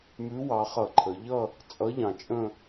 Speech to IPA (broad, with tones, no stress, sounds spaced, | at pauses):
m ʉ˨˥ w ɑ˩˧ χ ʌ˧˩˧ ǃʰ ə˩˧ ʎ ʌ˦˨ | t͡sʼ ʌ˨˥ ʎ ɑ̃˨˩ t͡ʃʼ ə̃˦˨